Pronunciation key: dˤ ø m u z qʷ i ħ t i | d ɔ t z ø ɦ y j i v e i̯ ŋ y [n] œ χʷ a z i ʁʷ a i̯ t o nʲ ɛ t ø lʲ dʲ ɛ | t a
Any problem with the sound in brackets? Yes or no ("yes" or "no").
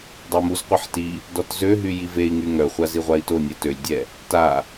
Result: yes